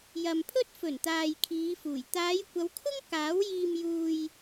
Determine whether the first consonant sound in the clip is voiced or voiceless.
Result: voiced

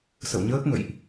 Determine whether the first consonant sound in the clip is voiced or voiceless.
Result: voiceless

